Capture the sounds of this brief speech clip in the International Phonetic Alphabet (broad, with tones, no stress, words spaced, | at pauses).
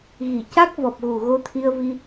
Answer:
ɣi˨˩˨ca˦˥k̚vɔ˨˩p̚ɣu˨˩ ɣo˧t̪ʰi˧ə̯vi˧